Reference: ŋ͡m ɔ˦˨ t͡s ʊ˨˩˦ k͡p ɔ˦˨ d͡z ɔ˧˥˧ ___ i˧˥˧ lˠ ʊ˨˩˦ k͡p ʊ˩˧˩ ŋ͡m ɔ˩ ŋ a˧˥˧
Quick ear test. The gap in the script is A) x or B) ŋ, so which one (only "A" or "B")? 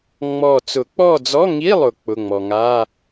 B